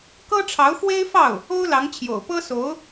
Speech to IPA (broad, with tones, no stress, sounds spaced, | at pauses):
k ɤ˥ ʈ͡ʂʰ ɑ˧˥ ʊ̯ x w e˥ ɪ̯ f ɑ˥˩ ʊ̯ | o˥ ʊ̯ l ɑ˧˥ ŋ t͡ɕʰ j o̰˨˩ ʊ̯ p ɤ˥ s o˧˥ ʊ̯